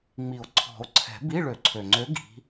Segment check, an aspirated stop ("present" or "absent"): present